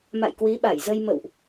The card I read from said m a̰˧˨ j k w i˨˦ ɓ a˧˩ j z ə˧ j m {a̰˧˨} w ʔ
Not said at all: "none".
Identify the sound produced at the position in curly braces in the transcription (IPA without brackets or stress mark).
ə̰˧˨